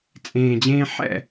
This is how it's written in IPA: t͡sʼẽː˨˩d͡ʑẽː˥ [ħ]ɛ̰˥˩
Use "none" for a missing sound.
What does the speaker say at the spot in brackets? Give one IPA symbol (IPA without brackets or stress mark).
ħ